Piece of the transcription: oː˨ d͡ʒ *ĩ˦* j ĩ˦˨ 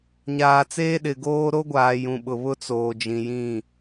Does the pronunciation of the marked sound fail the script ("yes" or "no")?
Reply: yes